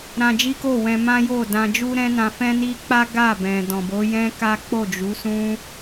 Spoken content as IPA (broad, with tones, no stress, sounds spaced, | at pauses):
ɾ ã˧ d͡ʒ i˦ k o˦˨ w ɛ̃˧ m ã˦ j o˦˨ d ã˧ d͡ʒ u˦ ɾ ɛ̃˦ n ã˧ f ɛ̃˦ n i˦ k͡p a˦ ɡ a˦˨ b ɛ̃˨ d ɔ̃˨ b o˨˦ j ɛ̃˦ k a˦ k͡p o˦˨ d͡ʒ u˨˦ s ũ˦